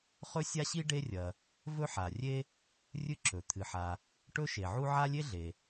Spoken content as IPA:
χɵ˥sʲa˥ɕi˥ ɖe˥rʲɐ˩ | vɵ˥ ħa˩ rʲe˥ | rʲɨ˥ǁɵ˩ t̪ʰɨ˩ħa˩ | ʈɵ˥ʃe˩ʕu˥ ʕa˥lʲe˥ɮe˩

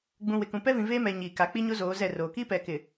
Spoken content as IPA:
ɡ͡bũ˨ wɪ˨kũ˨ pɛ˦vĩ˨ veː˦mɛ˨ ɲiː˨ka˨ k͡pi˦ɲo˦ zoː˨˦ zɛ˦˨roː˨ kiː˦pɛ˨ kɪ˨

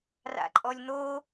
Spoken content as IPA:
ra̰ǃʼɔlʲn̪o

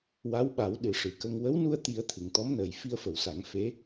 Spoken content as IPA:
wa˧˥wɓa˨˩˦w ɗɨ˨˩ʂɨ˨˩kə˧ŋ wə˧˥wnu˧ə̯t̪i˨˩˦ə̯ t̪ʰɨ˨˩˨ŋt̪ɔ˧˥mnəː˨˩j fi˧ə̯fə˨˩˨wsa˨˩˦ŋ fe˧˥

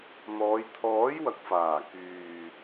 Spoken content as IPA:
n̪ɔː˨˧j t̪ʰɔː˨˥j wɐ˨k̚faː˨˩ kyː˨

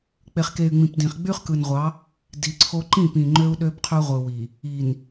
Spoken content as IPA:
k͡pe˨χke˨y̯ ŋ͡mĩ˨pdĩ˨χ ɡ͡by˦χkɯ˨nʁʷɑ˨˦ | di˨ǀʰo˦ ǃĩ˦˨pĩ˨ ŋ͡ǃø˦u̯ɗø˦bqʰø˦ʁʷɯ˨ wi˨ | i˨n

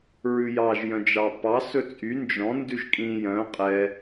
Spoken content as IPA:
ɹʉjɑʒ jœ̃d͡ʒɑpɑ sɵt͡sʼy nd͡ʒɔ̃ ndʉʒkʼĩ jœ̃ qʼɛ

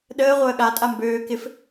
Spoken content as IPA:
ɗəː ʁʷəːɠa tʼambøː kɪf

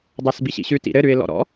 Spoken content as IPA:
dˤasbiɕḭɕʉ tḭɾɘ ɾʉɪ̯lɔ̰ɾɔ̰

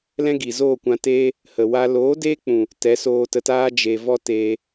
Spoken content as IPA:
lɛ̃˦ɡi˨ zoː˦˨kʷã˧teː˦ | hə˨wa˧ loː˨˦deː˦k͡pũ˨ | tɛ˨˦soː˧tə˧taː˦ d͡ʒe˨vɔ˦ teː˧

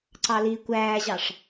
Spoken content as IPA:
ǀɑliːkʷæːʑɑʂ

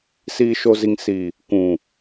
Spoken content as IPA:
siː˨ʃo˨zi˨ŋ si˨ | kũ˨

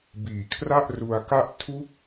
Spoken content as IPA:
biː˨˩kʰra˥˩ʔ ru˧a̯ka˥˩ʔ tʰu˦˥k̚

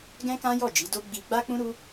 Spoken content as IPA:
ɡɛ̃˦kã˦jɔ˦˨d͡ʒi˨˦ do˦ ɡ͡bi˧ɡ͡ba˦k͡pũ˦ ɾu˦

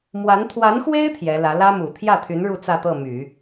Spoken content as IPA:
mwa˧˥n t̪ʰwa˧˥nxwe˥ɪ̯ t̪ʰjɛ˧˥lä˧˥ lä˥mu˨˩ t̪ʰjä˥˩t̪ʰy˧˥n ɻu˥˧t͡sä˥˧t̪ɤ˥˩my˨˩˦

